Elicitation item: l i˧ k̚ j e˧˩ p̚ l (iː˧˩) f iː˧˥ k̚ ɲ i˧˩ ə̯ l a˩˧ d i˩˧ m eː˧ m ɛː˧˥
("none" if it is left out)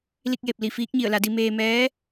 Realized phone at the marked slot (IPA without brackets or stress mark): i˧˩